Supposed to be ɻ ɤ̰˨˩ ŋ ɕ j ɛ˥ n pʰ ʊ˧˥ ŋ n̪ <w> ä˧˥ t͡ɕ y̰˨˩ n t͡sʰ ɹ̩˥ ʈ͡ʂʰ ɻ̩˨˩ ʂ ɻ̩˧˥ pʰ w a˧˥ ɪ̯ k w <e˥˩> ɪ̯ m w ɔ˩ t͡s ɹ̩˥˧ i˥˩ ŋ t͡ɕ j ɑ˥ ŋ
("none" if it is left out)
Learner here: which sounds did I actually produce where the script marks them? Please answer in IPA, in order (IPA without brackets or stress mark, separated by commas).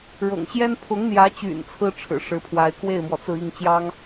j, e˥˩